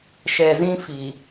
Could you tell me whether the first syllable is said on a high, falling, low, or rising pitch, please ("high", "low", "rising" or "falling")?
low